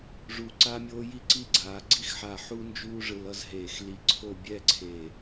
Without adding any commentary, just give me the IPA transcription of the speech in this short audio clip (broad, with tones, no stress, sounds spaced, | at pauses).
ʐ u˧˩ ǀ a˥ mʲ oː˥ j i˥ ǀ i˥˧ ɡ͡ǀ aː˩˧ ɡ͡ǀ i˥ x ħ a˧˩ ħ u˥ n d͡ʒ uː˥ ʐ ɯ˧ l ʌ˥ z ɦ eː˧˩ x l i˧ ǀʰ o˥˧ bʲ ɛ˥˧ ǀʰ e˧˩